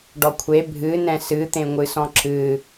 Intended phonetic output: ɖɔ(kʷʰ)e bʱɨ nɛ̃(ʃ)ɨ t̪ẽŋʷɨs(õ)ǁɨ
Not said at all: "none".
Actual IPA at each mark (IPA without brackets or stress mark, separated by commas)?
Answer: kʷʰ, s, ɔ̃